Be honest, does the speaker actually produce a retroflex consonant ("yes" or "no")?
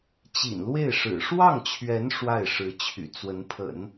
yes